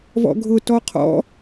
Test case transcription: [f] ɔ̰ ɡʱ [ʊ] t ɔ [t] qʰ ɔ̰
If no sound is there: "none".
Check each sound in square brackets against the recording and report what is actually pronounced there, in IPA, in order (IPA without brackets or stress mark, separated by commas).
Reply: v, ʊ, none